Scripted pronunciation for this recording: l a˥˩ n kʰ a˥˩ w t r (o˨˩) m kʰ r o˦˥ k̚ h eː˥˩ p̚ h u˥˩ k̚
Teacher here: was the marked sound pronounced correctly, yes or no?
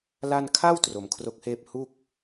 no